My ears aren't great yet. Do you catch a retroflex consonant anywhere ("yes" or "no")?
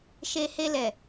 no